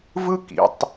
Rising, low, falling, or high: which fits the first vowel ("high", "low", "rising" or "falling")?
high